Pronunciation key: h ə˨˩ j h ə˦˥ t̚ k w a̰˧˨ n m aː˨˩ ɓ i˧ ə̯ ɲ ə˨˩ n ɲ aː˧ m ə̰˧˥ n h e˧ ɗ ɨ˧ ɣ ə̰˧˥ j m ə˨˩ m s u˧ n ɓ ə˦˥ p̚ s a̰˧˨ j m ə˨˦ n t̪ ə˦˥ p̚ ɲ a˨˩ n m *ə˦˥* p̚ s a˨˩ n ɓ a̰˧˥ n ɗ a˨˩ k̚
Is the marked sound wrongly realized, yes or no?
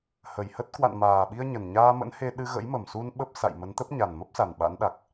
no